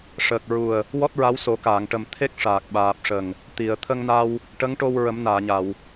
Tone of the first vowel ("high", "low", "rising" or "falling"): low